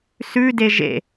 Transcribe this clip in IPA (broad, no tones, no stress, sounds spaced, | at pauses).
s ʉ d e ʒ ḛ